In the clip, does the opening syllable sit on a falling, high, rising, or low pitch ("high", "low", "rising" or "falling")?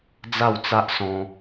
falling